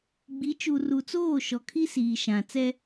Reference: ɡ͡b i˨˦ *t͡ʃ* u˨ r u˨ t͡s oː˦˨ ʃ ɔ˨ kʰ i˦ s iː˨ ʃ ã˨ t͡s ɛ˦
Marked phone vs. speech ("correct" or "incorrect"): correct